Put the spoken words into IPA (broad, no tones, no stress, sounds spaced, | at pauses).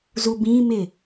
z u b ĩ m ɪ